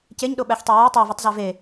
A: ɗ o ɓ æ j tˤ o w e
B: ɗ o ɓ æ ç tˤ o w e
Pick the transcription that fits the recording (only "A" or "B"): B